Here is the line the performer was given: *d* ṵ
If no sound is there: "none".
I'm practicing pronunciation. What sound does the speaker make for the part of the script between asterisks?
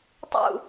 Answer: tˤ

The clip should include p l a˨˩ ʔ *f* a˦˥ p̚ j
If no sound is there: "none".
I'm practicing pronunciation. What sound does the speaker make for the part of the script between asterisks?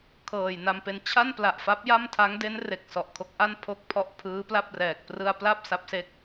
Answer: f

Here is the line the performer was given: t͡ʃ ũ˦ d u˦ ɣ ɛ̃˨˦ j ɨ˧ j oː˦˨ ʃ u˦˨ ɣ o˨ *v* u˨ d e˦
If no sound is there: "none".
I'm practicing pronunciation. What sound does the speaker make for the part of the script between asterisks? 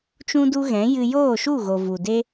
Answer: v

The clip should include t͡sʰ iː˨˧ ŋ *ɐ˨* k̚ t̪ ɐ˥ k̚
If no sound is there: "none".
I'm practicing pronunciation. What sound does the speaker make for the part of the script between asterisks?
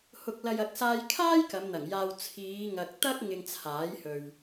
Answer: ɐ˨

